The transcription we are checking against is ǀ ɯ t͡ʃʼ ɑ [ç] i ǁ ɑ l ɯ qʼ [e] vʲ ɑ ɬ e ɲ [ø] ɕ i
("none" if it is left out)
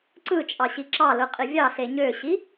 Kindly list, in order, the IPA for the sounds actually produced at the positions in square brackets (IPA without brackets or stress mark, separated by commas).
ɕ, i, ø